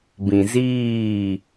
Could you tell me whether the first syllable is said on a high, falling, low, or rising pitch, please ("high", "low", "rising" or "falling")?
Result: low